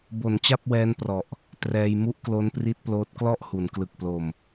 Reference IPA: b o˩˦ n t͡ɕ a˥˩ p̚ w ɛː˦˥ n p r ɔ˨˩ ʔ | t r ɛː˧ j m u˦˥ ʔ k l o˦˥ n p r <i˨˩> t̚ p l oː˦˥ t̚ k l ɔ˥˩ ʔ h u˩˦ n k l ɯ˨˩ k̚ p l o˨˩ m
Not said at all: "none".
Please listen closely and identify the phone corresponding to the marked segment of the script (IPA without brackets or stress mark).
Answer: i˦˥